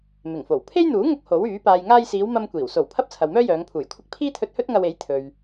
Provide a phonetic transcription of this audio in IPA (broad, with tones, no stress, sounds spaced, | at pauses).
m ɪ˨˩ ŋ f o˨˩ w pʰ e˥ j n̪ uː˨˥ ŋ ʊ˧ k̚ h o˨˥ w yː˨˥ p aː˨ j ŋ aː˧ j s iː˨˧ w m ɐ˥ m kʷ iː˨˩ w s o˨˩ w pʰ ɐ˥ p̚ t͡sʰ ɐ˨ w m œː˥ j œː˨˧ ŋ pʰ uː˨˩ j kʷʰ ɪ˥ k̚ pʰ iː˥ t̪ʰ ɵ˧ t̚ h ɵ˥ t̚ ŋ ɐ˧ w e˨˥ j t̪ʰ ɵ˨ ɥ